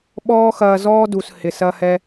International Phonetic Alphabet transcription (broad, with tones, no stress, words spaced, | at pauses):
ɓɔː˦ xɐː˧zɔː˦du˨s hɪ˨sɐ˦hɛ˦